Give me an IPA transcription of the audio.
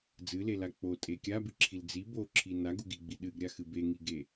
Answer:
d͡z ɨ l e l a k͡p o tʼ e kʲ a b ɨ ǁʰ i l d͡z i b o ǁʰ i n a ɡ u ɡ i ɡ͡b i ɗ ɨ ɡ ɾʲ a x ɨ b e ŋ i ɡ e

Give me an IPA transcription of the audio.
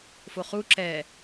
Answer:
f o χ u ǁ ɛː

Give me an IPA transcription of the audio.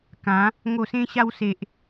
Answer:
k ã˨˦ | ŋ o˨˩ s ẽ˧ ɕ a˧ w s e˨ ʔ

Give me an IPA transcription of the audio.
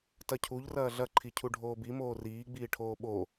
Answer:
t ɐ cʰ u ʎ r ɐː ɮ ɐ ǃʰ i cʰ u ɖʱ oː b i m oː r iː ɡ͡b iː ʈʰ oː ɓ o

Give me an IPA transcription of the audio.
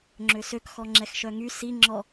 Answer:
ŋ͡ǁ ø s ø k x ɔ ŋ͡ǁ ɛ x ʃ œ ŋ y s i ŋ͡ǁ ɔ

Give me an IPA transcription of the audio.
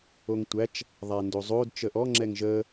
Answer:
o ŋ tʷ æ t͡ʃ | ðˤ a n d o zˤ o d t͡ʃ ə ʔ ɔ ŋ͡ǁ ɛ ŋ ʒ ə

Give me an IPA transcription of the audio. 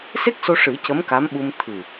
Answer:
s e˦˥ k̚ s o˧ ʂ ɨ˨˩˦ c ə˧˥ m k a˧˥ m ɓ u˧ m t̪ʰ ɨ˨˩

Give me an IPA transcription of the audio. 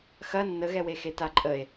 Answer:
x ɐ nː ə ɣ ɛ w e x e t a ǃʼ ə e̯

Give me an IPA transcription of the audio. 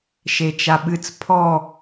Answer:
ʃ e t͡ʃ a ɓ ɨ t͡s pʰ ɔ

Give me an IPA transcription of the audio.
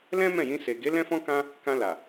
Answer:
l ɛ̃˦ m ɛ̃˦˨ j ĩ˧ s e˨ ɡ e˨˦ l ɛ̃˧ f ɔ̃˧ k ã˧ | k ã˧ l a˨

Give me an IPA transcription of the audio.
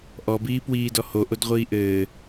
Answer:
ʔ ɔ b iː p w iː d ɔ h o ʔ o d ʁʷ iː ʔ ɘː

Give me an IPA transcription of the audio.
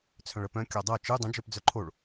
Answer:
t͡sʰ œ̃ ɭ ə p œ̃ kʲ ɒ dˤ ɤ t͡ʃ ɯ dˤ ə̃ d͡ʒ œ p d͡z œ ǃʰ o ɭ

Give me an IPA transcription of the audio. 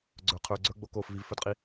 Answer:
ɡ͡ǀ ə˞ qʰ ə˞ ɡ͡ǀ ə˞ ɡ͡b o k o f v i v f ə˞ d qʼ i

